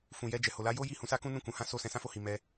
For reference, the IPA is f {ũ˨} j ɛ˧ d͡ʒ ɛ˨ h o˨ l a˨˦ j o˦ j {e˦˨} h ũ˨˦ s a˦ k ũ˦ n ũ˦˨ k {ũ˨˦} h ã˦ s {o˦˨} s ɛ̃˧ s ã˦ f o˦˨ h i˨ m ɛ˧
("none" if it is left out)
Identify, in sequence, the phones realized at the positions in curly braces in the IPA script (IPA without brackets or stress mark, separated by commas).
ũ˨, i˦˨, ũ˨˦, o˦˨